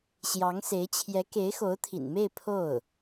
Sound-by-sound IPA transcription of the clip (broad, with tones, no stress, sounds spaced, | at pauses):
ɕ j ɑ˧˥ ŋ s e˧˥ ɪ̯ t͡ɕʰ j ɛ˧˥ k e˧˥ ɪ̯ x o˧˥ ʊ̯ t̪ʰ ḭ˨˩ n m e˥˧ ɪ̯ pʰ o˥˩ ʊ̯